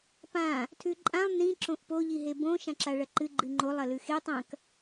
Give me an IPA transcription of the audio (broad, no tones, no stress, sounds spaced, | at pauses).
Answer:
p ã | tʰ ʉ ǃʼ ã lˠ n ĩ ǁ õ ʔ p o ʎ i ɦ e b õ ʃ ã ǁ a ɭ ɐ ǃ ɨ ɡ͡ǃ ɨ ŋ͡ǃ o lˠ ɐ l ʉ x e tˤ ɐ̃ k